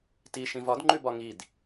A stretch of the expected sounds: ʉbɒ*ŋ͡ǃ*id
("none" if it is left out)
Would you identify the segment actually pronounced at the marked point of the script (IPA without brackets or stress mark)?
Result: ŋ